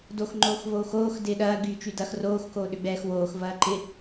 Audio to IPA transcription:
dox ŋ͡ǃoːxvoːxoːx dɪːɗɐː ɡyːt͡ʃydɐx roːx koːɗʏɡ͡bɛːxwoːx vɐːǃɪ

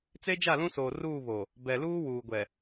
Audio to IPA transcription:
t͡se˦d͡ʒa˦˨lũ˦soː˨ ruː˦˨ βo˨ | bɛ˨luː˦ wuː˨ɡʷɛ˨

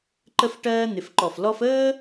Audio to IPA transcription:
ǃə˥fʈɜː˥ n̪ɪ˧˩fǃɔ˧˩f lɔ˥f əː˥

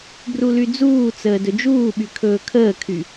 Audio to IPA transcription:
brulyd͡zuːt͡səː dɵd͡ʒuːɓy kʰɵːkʰəːkʰy

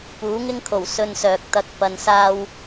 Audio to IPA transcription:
puː˨˥ŋɪ˥ŋkʰo˨˩w sɵ˧nsœː˨k̚t̪ɐ˧k̚ pɐ˨nsaː˧w

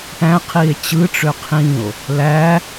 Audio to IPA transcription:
ʈæ̃qʰie̯ t͡ɕɯʈ͡ʂø qʰĩo̯ | læ

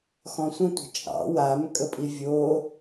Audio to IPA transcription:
xɔ̃sʷə̃tʷə̤ t͡ʃʼɑ̰ wam kʼəpʼivʲo

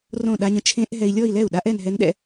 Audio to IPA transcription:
rõ˥˩ ɗa˧ɲə̃˦˥ t͡ʃʰẽ˦˥ʔ ɦɛ˧i̯lʲɔ˥˧i̯lɛ˥˩u̯ɗa˦˥ʔ ɛ˥˧nɦɛ˦˥nɗɛ̰˥˧

